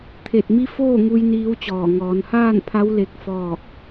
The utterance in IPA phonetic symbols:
t̪ʰ e˧˩ t̚ m i˧˥ f oː˥˨ ŋ u˧ j n iː˧˥ w t͡ɕ ɔː˧˩ ŋ ɔː˩˧ n h aː˥˨ n pʰ a˧˥ w l e˧˥ k̚ f ɔː˥˨ k̚

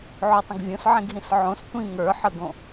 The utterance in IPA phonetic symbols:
ʕ o tˤ ə̃ ɡ vʲ õ s ʕ ĩ ɡ ɦ ĩ s ʕ õ s tʷ ĩ ŋ ə˞ ħ ə ɡ õ

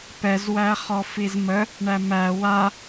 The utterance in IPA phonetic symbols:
p ɛ z w æ χ ɔ f i z m ə | ɳ æ m æ w a

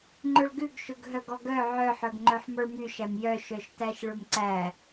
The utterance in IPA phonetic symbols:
ŋ͡ǃ ɵ ɭ ɡ ʉ ɡ ʃ ɵ ɡ ɦ œ ɡ ɔ ɡ œ ʕ œ ħ œ ɡ ŋ͡ǃ œ ħ m ɔ ɭ m y ʃ æ m j œ ʃ œ ʃ t æ ʃ ɭ ɵ m ǀ æ

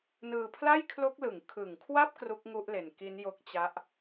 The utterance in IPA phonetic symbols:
n ɯː˧ pʰ l a˥˩ j kʰ l o˦˥ k̚ l ɯ˩˦ ŋ kʰ ɯ˨˩ ŋ kʰ w a˥˩ p̚ k r u˦˥ k̚ ŋ u˦˥ ʔ l e˨˩ n k i˦˥ n j o˦˥ k̚ t͡ɕ a˦˥ ʔ

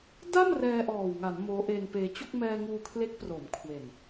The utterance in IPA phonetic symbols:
d a˥˩ m r ɛː˧ ʔ ɔː˨˩ w ŋ a˩˦ n m oː˦˥ ʔ e˧ n p eː˧ t͡ɕ o˥˩ k̚ m ɛː˧ ŋ uː˧ kʰ l e˦˥ k̚ p r oː˩˦ m kʰ w e˨˩ n

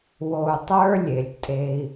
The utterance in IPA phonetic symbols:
w o˧ u̯ tˤ ə˞˦ lʲ e˨ lʲ tʼ e˧ i̯

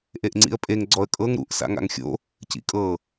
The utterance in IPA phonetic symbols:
ʔ e ʔ ŋ͡ǀ ḭ ə̯ pʼ e ŋ ɡ͡ǀ ɔ ə̯ kʼ ɤ ŋ ɾ ṵ ʔ s a̰ ŋ a̰ ŋ xʲ o̰ | c ḭ kʼ ɤ

